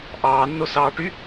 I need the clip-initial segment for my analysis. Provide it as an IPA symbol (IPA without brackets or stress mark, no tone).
ʔ